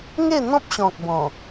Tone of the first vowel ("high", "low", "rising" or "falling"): falling